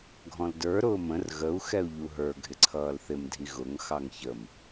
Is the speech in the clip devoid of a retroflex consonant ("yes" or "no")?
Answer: yes